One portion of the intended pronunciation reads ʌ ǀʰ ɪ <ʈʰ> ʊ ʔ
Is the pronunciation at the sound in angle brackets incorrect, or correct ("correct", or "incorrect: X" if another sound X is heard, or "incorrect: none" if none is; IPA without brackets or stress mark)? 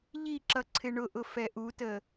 incorrect: ɳ